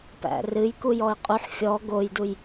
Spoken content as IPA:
p æ̰ r ɨ j k u j ɔ ɪ̯ qʼ u ħ xʲ ɔ ɡ o j d u j

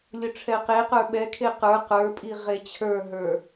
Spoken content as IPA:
lʲ ʊ ʈ͡ʂʰ ɛ q e q ə˞ ɓ ɛ kʰ e q ə˞ q ə˞ pʼ i ʁ e t͡ɕʰ ə˞ ɦ ə˞

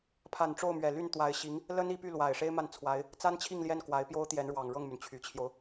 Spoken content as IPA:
pʰ a˨˩ n ʈ͡ʂ o˥˩ ʊ̯ m ɥ ɛ˨˩ l y˥˩ n t̪ w a˧˥ ɪ̯ ɕ i˧˥ ŋ | l ə˥ n i˧˥ p y˥˩ l w a˨˩ ɪ̯ ʂ e˥ ɪ̯ m a˥˩ n t͡sʰ w a˧˥ ɪ̯ | t͡s a˥ n t͡ɕʰ i˥˧ ŋ l j ɛ˥˩ n k w a˧˥ ɪ̯ p j o˥ ʊ̯ t̪ j ɛ˧˥ n ɻ w ɑ˨˩ ŋ ɻ ɤ˥˩ ŋ m y˩ n t͡ɕʰ y˨˩ t͡ɕʰ j o˦ ʊ̯

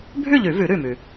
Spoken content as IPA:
bʱ ʉ˥˨ ʎ ʉ˨˩˦ v ʉ˨˩˦ ɾ ʉ˧˩ m ʉ˩

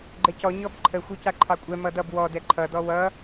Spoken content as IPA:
ɡ͡ǃ ɛ c ɔ ɲ ɔ b ǃʰ ə xʷ ɛ c a ǃʰ ɑ kʷʼ ɛ m ʌ d ʌ b w ɔ d ɛ ǃʰ ʌ d ɔ w ʌ

